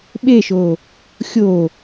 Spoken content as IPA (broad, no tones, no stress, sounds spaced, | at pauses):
ɓ e ʃ o | xʲ o